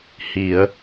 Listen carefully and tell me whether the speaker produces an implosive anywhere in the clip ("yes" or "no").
no